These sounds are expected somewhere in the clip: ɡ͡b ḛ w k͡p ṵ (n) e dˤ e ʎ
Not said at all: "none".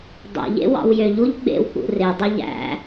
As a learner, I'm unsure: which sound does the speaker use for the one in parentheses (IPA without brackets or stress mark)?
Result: r